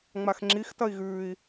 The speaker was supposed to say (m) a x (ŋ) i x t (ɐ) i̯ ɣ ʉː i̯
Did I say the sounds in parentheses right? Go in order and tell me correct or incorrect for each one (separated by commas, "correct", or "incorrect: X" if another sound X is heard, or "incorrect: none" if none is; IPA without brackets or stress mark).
incorrect: ŋ͡m, incorrect: ŋ͡ǁ, correct